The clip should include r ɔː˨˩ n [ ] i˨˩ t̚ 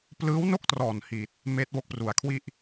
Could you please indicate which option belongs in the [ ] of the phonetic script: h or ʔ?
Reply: h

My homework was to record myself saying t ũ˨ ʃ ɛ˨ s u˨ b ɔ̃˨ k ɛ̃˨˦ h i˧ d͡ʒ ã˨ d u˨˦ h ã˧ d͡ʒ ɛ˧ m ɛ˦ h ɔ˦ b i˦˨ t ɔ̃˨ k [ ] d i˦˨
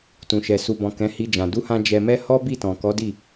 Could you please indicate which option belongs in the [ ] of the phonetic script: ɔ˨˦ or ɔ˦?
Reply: ɔ˨˦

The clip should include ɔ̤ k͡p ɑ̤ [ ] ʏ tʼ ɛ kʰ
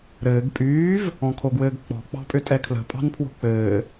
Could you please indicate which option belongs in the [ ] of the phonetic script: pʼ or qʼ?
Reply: pʼ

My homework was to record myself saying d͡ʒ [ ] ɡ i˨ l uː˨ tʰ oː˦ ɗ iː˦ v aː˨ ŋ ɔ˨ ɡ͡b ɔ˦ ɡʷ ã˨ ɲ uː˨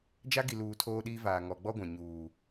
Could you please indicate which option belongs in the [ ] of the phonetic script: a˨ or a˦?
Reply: a˦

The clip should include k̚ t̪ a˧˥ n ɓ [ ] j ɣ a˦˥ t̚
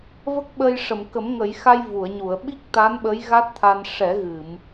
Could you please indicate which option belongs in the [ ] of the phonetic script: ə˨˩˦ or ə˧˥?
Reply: ə˧˥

